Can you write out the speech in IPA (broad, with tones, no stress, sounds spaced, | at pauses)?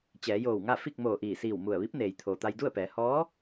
t͡ɕ ɛː˩˧ j oː˧˩ w ŋ a˥˨ f i˥˨ k̚ m oː˧˩ ʔ iː˧˩ s iː˧˩ w m u˧˩ ə̯ ʋ i˧˥ p̚ n eː˩ j t̪ʰ oː˩ t̪ a˧ j d u˥˨ ə̯ p ɛː˩˧ h ɔː˧˥